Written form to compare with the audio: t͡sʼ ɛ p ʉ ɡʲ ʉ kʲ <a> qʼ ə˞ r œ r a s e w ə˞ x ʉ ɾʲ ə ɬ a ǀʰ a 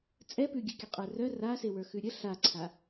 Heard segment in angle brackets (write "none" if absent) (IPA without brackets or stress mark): ə